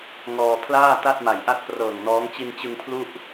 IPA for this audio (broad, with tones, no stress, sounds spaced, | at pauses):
ŋ ɔː˧ pʰ l aː˥˩ t a˥˩ t̚ m a˨˩ j ʔ a˥˩ t̚ p r ɤː˨˩ ŋ n ɔː˦˥ ŋ t͡ɕ i˧ n t͡ɕ ɯ˧ ŋ pʰ l u˥˩ ʔ